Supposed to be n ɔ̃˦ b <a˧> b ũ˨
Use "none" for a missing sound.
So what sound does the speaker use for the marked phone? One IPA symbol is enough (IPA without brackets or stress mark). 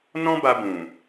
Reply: a˧